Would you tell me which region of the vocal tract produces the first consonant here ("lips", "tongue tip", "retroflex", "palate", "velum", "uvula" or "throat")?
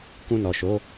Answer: velum